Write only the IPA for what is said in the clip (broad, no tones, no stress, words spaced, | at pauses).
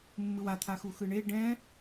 mːɯwat̪ʰa xuxɯɳe ɖɛ̃